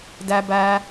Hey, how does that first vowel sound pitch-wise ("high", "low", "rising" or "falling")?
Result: high